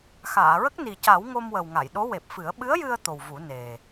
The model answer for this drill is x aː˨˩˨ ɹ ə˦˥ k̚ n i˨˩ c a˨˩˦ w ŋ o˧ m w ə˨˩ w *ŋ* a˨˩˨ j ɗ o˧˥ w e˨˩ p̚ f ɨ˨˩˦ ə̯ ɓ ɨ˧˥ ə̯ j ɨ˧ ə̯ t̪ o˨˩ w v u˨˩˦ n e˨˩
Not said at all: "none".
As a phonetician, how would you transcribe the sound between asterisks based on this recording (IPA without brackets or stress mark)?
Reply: ŋ